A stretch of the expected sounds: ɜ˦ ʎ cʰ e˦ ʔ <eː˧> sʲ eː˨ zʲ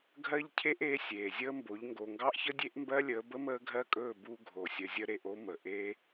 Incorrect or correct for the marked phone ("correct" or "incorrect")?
correct